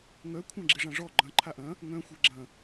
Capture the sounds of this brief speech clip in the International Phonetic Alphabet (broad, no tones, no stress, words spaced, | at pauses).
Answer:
ŋœ kʷʰãɡ͡ǁɪʐãʐɔ ɡ͡ǃɐ̃ ǃʰaʔɐ̃ | ŋœ̃ xʷeɡ͡ǁɐ̃